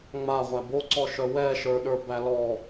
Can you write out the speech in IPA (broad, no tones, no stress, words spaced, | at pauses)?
ŋ͡maʁʷæ boǀɔʃœ wɛʃə˞ɗə˞bæ lɔ